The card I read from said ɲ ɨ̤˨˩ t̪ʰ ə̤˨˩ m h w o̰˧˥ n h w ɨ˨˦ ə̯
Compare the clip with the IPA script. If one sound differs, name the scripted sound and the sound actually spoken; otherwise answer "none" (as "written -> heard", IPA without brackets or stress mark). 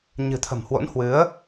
none